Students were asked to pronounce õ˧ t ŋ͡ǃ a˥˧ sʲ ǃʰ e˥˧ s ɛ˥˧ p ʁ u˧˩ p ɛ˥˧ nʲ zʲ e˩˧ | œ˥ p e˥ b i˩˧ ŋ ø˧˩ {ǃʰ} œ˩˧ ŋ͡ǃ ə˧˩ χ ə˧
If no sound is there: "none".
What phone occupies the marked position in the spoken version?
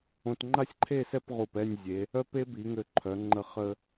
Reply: ǃʰ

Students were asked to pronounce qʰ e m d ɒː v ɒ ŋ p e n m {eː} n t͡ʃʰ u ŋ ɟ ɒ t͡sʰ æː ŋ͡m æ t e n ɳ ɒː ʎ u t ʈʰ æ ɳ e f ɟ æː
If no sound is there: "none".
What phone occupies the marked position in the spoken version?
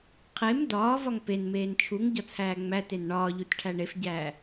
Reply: eː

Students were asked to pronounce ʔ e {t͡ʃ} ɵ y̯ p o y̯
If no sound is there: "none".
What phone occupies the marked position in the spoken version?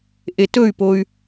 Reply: t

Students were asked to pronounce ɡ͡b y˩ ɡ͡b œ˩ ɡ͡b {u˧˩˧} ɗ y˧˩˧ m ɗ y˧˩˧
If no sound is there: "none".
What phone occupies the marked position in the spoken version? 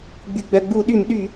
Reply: u˧˩˧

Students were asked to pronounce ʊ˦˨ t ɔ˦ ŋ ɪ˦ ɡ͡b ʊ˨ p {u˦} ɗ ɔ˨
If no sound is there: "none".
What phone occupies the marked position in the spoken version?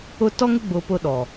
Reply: ʊ˦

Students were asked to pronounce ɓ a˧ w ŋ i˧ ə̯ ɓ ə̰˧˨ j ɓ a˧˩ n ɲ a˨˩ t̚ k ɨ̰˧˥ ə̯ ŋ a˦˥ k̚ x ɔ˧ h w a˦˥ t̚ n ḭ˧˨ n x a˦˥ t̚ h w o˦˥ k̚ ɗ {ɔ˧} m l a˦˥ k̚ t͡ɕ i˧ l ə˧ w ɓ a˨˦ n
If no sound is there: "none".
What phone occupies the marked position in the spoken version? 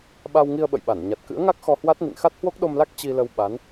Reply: o˧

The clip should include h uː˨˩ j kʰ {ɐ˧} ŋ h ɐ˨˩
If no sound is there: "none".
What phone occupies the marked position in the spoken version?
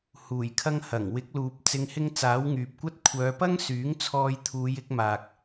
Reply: ɐ˧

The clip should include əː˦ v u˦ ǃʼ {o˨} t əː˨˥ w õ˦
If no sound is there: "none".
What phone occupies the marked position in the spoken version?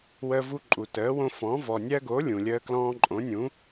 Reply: u˨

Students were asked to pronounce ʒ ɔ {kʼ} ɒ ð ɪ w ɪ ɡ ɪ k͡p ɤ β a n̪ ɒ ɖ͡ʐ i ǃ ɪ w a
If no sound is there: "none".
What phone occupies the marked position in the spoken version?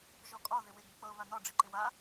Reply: kʼ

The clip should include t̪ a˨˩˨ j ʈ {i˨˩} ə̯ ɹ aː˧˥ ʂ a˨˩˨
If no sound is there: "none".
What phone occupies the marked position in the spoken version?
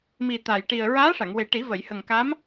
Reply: i˨˩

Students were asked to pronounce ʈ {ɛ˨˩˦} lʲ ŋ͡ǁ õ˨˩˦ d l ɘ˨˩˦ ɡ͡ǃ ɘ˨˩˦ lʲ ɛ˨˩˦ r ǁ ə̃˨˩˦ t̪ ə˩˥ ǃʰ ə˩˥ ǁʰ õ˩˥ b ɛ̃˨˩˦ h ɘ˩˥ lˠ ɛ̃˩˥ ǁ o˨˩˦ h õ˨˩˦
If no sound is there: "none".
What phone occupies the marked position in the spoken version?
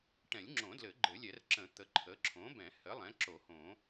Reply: ɛ̃˨˩˦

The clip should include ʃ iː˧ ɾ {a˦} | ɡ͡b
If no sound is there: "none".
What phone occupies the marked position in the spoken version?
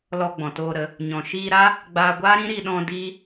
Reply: a˦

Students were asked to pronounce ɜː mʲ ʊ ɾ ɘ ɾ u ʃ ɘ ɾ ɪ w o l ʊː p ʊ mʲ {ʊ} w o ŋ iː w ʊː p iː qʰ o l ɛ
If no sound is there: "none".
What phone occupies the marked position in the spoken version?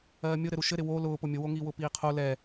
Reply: ʊ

